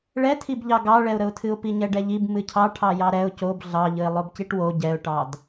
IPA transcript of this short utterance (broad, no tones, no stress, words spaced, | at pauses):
ɭɛtʰibʎɑ ɡɑɭɛʊ̯ɾəʊ̯tʰɨʊ̯ piɲɛɖɛʎib mɨcʰɑ ʈʰɑjɑɾɛʊ̯ cob ɮɑʎɨɪ̯ lˠobciʈwo ɟɛʊ̯ʈɑd